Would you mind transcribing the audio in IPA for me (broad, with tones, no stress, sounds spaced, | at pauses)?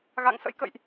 ɣ a̰˧˨ ŋ s ə̰˧˥ j k ə̰˧˨ j ʔ